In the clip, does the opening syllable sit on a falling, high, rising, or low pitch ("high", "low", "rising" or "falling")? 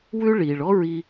high